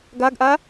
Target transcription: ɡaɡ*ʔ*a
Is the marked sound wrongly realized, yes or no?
no